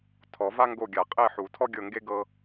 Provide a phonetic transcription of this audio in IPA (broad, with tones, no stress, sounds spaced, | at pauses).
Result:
tʰ ɔ˨˩˦ v a˥ ŋ ɡ o˦˨ ɡʲ a˨˩˦ qʼ e˦˨ ħ u˨˩˦ tʰ ɔ˥ ɡʲ ɤ˦˨ ŋ ɡ e˥ ɡ ɤ˥